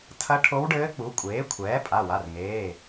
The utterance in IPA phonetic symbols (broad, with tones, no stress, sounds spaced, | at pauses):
tʰ ɐ˧˥ ʈʰ o˧˥ w ɖ ɘː˧˥ k͡p u˩˥ kʷʼ eː˩˥ kʷʰ ɛː˩˥ pʼ a˩˧˩ w a˩˧˩ r ŋ eː˩˧˩